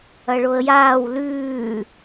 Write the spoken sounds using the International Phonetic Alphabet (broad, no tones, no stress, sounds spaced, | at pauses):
ɐ ɭ o ə̯ j aː w l ʉː